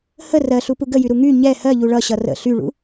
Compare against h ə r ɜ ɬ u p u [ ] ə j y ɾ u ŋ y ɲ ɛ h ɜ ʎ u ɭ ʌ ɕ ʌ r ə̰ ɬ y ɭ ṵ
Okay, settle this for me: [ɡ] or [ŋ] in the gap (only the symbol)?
ɡ